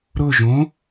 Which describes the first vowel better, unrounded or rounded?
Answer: rounded